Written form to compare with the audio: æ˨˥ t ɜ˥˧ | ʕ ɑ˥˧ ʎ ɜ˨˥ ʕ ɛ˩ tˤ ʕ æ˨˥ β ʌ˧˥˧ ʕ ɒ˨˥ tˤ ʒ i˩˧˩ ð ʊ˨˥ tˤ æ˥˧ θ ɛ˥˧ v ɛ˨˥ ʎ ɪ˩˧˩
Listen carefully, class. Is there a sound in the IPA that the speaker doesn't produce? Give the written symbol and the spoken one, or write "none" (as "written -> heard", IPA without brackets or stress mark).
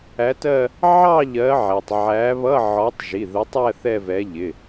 none